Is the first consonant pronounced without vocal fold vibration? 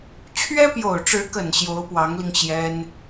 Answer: yes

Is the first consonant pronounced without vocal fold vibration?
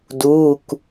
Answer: no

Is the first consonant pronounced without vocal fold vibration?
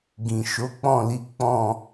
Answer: no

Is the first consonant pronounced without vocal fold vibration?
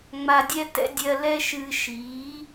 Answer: no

